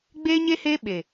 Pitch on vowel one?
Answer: high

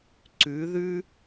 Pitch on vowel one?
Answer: rising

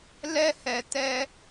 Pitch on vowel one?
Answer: high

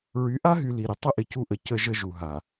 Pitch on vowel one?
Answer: rising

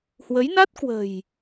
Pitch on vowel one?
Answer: rising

